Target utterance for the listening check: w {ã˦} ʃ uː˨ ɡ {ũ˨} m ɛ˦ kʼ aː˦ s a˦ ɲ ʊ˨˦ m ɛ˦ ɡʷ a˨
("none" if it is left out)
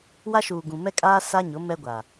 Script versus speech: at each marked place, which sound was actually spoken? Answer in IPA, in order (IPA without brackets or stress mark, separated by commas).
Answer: a˦, ũ˨